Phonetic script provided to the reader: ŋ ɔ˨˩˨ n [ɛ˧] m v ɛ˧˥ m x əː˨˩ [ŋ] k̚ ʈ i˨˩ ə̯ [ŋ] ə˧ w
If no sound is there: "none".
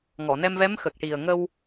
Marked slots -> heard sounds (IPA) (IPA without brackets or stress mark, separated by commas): ɛ˧, none, ŋ